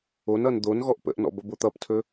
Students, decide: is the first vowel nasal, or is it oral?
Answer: oral